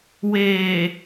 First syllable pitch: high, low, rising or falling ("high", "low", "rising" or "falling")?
low